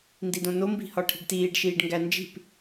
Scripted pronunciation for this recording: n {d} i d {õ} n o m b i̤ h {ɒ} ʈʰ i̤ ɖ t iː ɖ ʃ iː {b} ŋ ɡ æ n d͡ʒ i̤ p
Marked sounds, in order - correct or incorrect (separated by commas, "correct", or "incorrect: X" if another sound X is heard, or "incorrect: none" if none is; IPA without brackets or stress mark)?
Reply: correct, correct, correct, incorrect: ɖ